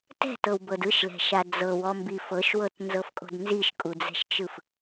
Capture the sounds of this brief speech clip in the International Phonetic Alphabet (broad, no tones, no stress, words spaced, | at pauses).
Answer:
tɛ̤tɤwbɤd ɯʃlɛ̤ʃa d͡zɤwɔmbi fɤʃwɤtnzɤfkʼo̤d nziʃkʼud͡zɛ̤ʃt͡ʃɯf